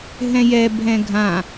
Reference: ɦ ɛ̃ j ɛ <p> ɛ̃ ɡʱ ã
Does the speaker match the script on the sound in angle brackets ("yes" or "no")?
no